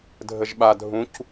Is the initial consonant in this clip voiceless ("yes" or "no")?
no